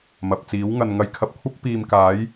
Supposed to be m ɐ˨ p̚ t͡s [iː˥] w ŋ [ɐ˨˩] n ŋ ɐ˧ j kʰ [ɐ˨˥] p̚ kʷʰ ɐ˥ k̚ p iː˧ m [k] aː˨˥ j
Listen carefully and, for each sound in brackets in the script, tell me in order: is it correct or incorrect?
incorrect: iː˨˥, incorrect: ɐ˧, incorrect: ɐ˧, correct

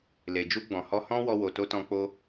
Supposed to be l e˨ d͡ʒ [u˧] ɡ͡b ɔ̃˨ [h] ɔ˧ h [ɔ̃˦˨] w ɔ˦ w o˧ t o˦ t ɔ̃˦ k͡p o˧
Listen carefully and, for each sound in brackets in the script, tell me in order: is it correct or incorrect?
correct, correct, incorrect: ɔ̃˦

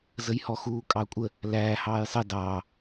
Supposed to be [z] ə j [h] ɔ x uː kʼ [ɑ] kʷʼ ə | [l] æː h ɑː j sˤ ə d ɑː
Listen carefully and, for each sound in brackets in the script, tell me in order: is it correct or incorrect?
correct, correct, correct, correct

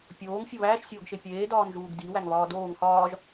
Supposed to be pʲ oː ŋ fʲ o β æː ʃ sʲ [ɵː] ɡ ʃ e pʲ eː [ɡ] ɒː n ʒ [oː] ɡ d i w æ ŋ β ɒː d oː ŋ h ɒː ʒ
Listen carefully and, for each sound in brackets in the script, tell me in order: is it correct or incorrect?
incorrect: oː, incorrect: d, incorrect: uː

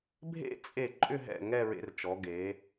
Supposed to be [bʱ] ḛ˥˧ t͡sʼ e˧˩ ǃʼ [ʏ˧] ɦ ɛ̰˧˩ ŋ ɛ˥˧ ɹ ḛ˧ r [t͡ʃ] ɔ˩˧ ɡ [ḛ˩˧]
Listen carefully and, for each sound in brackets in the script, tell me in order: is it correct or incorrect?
correct, incorrect: ʏ˥˧, correct, incorrect: e˩˧

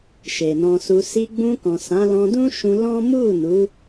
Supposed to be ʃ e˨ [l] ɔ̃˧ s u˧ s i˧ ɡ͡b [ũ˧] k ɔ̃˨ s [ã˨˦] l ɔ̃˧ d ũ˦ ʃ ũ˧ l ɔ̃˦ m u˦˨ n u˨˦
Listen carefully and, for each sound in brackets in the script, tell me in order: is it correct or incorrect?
incorrect: n, correct, correct

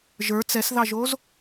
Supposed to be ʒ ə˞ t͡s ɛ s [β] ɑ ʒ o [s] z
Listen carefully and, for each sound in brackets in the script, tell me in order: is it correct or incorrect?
incorrect: ð, incorrect: none

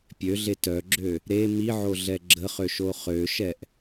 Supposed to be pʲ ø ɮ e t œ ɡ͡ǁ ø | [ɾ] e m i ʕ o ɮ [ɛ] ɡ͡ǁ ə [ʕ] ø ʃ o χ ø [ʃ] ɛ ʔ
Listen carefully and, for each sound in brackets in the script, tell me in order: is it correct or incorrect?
correct, correct, incorrect: χ, correct

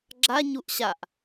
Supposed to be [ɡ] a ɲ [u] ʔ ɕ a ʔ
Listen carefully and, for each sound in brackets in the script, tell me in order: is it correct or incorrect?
incorrect: ɡ͡ǁ, correct

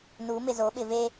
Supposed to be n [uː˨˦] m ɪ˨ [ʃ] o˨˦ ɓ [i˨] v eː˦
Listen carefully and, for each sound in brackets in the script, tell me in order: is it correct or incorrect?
correct, incorrect: z, incorrect: ɪ˨

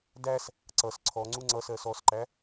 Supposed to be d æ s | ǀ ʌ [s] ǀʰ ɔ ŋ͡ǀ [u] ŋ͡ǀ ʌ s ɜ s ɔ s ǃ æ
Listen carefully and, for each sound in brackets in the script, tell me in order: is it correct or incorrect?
correct, correct

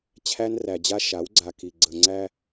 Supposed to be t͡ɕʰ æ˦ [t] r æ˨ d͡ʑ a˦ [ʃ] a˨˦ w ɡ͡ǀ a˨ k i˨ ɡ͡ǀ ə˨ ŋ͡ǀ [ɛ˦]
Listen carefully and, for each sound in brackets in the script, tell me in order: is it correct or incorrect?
incorrect: n, correct, incorrect: æ˦

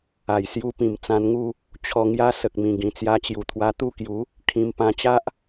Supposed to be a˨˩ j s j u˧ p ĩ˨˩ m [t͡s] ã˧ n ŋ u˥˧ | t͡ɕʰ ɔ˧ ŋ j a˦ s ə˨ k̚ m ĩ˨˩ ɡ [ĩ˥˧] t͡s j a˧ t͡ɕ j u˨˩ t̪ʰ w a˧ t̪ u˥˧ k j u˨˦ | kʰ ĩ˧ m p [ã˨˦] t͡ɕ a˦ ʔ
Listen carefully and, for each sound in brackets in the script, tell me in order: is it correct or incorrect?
correct, incorrect: ĩ˨˩, incorrect: ã˧

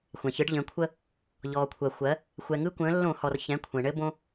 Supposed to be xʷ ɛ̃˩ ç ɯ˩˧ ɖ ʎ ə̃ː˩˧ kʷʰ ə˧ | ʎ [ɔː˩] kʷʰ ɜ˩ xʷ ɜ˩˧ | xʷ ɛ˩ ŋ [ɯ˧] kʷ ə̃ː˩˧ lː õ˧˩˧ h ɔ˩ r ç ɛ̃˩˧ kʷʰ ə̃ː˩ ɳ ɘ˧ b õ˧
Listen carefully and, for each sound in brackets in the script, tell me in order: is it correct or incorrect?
correct, correct

